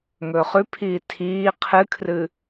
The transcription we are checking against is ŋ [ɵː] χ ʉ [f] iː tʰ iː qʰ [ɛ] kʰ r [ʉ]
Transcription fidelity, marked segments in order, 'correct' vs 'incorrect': correct, incorrect: pʰ, incorrect: ɨ, incorrect: ɨ

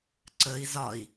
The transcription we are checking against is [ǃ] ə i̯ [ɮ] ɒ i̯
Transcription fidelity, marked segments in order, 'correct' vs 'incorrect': incorrect: ǀ, incorrect: z

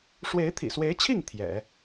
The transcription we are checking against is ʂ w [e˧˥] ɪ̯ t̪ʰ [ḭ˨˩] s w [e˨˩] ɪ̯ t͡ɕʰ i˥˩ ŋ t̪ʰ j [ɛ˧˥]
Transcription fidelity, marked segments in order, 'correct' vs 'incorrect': correct, correct, incorrect: e˧˥, incorrect: ɛ̰˨˩˦

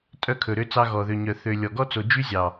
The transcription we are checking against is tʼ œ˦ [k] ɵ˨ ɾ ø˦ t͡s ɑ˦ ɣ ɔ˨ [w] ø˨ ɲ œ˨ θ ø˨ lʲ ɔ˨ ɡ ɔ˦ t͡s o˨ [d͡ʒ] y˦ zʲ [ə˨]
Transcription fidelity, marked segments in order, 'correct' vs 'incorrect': incorrect: kʰ, incorrect: ð, correct, incorrect: ɑ˨

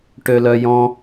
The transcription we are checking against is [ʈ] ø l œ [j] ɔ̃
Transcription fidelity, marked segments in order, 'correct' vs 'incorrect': correct, correct

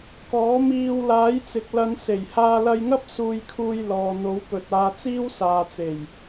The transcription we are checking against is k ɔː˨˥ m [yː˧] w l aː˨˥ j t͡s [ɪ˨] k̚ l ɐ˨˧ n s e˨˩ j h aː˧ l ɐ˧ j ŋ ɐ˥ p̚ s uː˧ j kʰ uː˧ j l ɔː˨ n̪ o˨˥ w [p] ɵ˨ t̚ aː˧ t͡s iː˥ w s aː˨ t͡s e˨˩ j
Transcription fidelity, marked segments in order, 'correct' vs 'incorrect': incorrect: iː˧, correct, correct

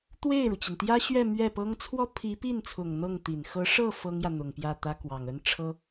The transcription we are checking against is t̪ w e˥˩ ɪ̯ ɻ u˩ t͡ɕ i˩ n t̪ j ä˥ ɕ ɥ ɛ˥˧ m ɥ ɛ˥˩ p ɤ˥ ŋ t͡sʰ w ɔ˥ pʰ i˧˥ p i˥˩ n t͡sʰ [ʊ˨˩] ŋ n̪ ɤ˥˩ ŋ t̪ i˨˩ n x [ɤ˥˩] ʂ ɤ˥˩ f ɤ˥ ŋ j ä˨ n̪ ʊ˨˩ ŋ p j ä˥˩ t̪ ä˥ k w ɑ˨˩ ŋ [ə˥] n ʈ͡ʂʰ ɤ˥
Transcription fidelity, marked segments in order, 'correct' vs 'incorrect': correct, incorrect: ɤ˧˥, correct

